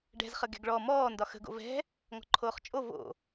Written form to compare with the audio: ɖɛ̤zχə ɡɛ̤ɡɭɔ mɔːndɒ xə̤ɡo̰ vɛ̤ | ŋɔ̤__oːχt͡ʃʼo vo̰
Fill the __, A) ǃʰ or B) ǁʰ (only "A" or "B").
A